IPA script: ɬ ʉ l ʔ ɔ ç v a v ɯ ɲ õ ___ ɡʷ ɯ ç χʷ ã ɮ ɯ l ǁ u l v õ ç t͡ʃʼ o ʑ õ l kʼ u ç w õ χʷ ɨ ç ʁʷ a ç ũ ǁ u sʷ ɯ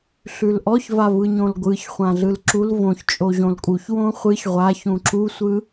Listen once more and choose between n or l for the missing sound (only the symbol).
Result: l